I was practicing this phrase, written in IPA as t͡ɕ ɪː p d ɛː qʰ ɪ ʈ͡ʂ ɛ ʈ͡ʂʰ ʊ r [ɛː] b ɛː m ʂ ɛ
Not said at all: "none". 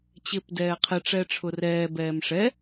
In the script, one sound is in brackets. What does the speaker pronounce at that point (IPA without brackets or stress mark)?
ɛː